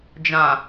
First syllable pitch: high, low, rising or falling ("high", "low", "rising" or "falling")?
low